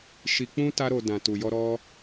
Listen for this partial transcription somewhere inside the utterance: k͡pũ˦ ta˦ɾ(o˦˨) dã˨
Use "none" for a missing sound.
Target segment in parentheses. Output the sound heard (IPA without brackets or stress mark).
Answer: o˧